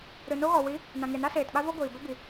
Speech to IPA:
ɾ ɨ˨ n o˦ ɣ ɔ˨ w i˨˦ | n ã˨ ŋ e˨ n a˦ s eː˨ t ɓ a˦ v ɔ˦ ɡʷ iː˨ b ɛ˦ b i˨

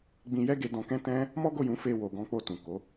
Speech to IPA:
ɡ͡b ĩ˧ j ɛ˦ ɡ e˧ d ɔ̃˧ k ɛ̃˦ t ɛ̃˦ | m ɔ˦ ɡ o˦˨ j ũ˨˦ f e˧ w o˨ ɡ ɔ̃˨˦ k͡p o˧ t ũ˨ k o˨˦

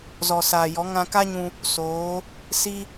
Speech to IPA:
z ɔ˨ s aː˨ j ɔ˨˦ ŋ ã˧ k a˦ ɲ ũ˧ | s oː˨˦ | s i˦

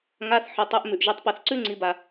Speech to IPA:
ŋ a˩˧˩ θ ħ ɵ˩ tˤ ʉ˩˧ ʔ m ʉ˩ ʔ ʒ ɨ˩˧˩ tˤ p ɐ˧˩˧ θ ǀ ʉ˦ ŋ͡ǀ i˩˧ b a˩

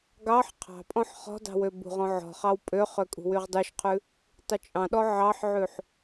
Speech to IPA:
ɡ ɑ ħ qʰ ɑ̤ pʼ ɔ̃ ħ χ ɔ̤ d ɑ̤ w ø b ṳ ʁ ɔ̃ ʕ ɔ̤ χ ɑ w pʼ ø χ ø kʼ ṳ w y ʁ dˤ y ʃ qʰ ʉ | tˤ u t͡ʃʼ ɑ̃ ɗ ɔ ʕ ɑ ħ ʕ ʉ ħ

